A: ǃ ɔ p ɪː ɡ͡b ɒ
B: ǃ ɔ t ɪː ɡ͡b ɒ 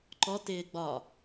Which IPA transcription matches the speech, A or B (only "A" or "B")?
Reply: B